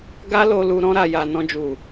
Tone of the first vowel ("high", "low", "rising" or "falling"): high